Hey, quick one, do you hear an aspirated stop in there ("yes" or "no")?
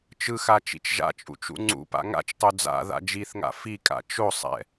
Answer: no